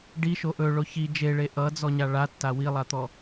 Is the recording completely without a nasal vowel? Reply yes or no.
yes